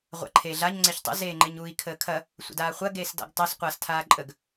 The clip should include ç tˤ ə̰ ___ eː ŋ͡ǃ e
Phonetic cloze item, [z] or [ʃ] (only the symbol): z